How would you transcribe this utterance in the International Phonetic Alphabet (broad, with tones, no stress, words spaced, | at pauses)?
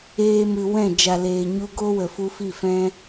eː˧mɨ˨ wɛ̃˦˨ d͡ʒa˨leː˨ɲu˧ ɡo˦wə˨fu˧ fi˦˨fɛ̃˦